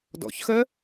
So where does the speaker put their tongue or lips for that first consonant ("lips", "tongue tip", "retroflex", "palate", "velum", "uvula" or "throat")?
tongue tip